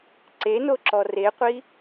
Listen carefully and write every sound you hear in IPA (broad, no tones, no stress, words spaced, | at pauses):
ǀenoǁɔ reqʷi